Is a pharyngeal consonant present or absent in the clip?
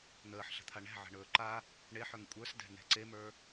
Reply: present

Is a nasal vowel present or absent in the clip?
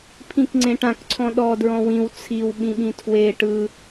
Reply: present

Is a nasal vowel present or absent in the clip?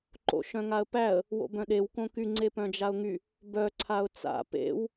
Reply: present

